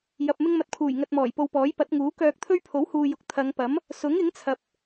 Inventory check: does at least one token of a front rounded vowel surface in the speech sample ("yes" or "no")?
yes